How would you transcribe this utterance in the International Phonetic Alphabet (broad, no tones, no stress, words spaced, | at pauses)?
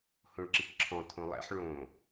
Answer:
hõɭǁikǁʰɔ̃ t̪ʰõlˠɛ̰ħ ɭõ